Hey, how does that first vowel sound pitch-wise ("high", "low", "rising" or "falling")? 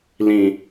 low